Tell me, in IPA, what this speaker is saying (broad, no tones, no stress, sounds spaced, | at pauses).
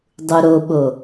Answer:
dˤ u ɾ o ɓ o